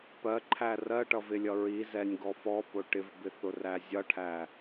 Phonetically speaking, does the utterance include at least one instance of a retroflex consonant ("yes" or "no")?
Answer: yes